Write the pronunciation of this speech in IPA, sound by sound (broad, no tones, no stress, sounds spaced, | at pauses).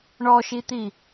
ɳ ɔ ʃ i t̪ i